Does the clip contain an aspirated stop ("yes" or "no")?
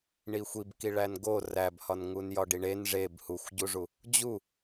no